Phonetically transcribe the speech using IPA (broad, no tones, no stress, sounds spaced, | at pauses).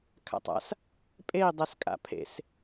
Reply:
kʰ a̰ tˤ a̰ s | pʼ e i̯ dˤ ɛ s kʼ a̰ pʰ ḛ s